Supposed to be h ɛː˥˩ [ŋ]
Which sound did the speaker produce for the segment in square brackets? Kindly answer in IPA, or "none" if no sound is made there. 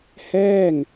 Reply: ŋ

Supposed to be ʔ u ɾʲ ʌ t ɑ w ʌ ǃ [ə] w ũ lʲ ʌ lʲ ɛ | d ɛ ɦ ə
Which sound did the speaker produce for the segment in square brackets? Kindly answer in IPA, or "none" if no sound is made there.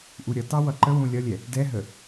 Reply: ə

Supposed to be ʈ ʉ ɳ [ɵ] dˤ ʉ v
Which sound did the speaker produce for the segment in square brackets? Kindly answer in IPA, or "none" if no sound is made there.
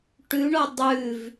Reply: o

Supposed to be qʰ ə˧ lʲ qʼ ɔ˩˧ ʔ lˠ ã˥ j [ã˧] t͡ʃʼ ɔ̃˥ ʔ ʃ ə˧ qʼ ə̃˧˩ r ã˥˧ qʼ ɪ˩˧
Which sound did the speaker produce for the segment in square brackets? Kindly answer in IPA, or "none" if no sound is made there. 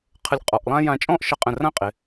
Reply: ã˧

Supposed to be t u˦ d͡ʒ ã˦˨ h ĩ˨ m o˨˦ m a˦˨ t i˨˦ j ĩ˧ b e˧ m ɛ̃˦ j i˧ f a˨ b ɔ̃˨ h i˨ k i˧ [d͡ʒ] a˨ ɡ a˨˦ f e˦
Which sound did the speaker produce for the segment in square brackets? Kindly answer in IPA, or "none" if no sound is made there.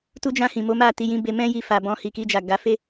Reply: d͡ʒ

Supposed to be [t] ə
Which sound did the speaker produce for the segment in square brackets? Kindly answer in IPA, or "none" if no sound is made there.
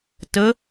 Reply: t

